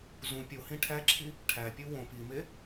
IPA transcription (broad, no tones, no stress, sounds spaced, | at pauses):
z ũ pʲ o h ĩ ʈʰ æ ǁʰ i | ʈʰ æ pʲ u w õ p i m e